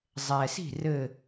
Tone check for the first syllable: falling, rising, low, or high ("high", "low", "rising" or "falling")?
low